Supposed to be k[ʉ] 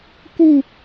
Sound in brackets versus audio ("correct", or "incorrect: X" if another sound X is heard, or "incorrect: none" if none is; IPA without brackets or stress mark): incorrect: u